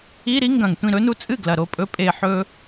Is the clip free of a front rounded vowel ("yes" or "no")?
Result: yes